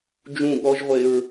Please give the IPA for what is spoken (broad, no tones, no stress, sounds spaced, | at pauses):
d͡ʒ ũ ɠ ɔ ʒ ʁʷ e ɹ